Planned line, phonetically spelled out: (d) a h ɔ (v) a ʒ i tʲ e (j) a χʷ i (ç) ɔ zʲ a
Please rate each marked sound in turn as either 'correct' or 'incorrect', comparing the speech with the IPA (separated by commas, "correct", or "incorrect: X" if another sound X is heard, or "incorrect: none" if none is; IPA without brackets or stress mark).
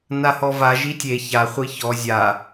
incorrect: n, correct, incorrect: ç, correct